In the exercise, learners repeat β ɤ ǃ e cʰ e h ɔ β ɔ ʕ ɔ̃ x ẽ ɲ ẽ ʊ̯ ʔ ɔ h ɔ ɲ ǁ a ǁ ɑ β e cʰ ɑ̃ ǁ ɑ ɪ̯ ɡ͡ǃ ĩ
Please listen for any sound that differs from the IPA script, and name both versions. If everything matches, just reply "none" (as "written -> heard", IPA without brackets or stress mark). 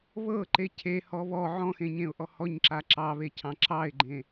ĩ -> ẽ